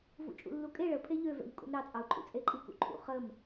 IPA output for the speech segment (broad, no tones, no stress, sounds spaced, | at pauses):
v ṵ t͡ʃʼ ṵ lː u kʼ e ɭ ə pʰ e ʎ ø v ɛ̰ ʎ kʼ ṵ n ɾ ɑ t͡sʼ ɑ ʊ̯ ǃʼ ṵ t͡sʼ e ǃʼ i k ṵ ǃʰ ṵ χ ə m